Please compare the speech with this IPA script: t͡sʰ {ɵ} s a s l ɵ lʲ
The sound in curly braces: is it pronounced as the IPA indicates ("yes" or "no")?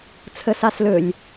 no